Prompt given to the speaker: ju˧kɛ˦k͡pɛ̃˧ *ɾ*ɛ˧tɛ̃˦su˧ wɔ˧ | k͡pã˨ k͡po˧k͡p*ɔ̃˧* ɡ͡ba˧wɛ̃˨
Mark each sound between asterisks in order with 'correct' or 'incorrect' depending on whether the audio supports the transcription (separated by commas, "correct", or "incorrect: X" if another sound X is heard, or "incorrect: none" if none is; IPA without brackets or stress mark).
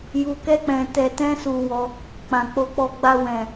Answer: incorrect: t, incorrect: ɔ˧